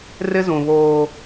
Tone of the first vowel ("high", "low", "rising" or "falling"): high